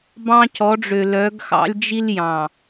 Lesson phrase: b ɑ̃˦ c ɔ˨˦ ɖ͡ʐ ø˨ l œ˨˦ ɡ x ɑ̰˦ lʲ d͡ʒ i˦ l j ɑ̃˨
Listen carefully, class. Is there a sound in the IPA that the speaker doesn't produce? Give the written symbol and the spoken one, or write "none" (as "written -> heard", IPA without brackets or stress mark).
none